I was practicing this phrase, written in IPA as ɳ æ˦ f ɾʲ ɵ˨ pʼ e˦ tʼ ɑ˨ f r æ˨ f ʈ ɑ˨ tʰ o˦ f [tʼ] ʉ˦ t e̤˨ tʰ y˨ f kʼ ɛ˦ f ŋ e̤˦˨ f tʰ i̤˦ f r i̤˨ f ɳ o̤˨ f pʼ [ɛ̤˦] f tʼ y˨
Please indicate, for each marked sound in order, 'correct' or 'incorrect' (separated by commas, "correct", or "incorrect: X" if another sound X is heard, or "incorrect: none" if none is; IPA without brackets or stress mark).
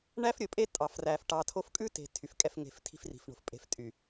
incorrect: kʼ, incorrect: e̤˦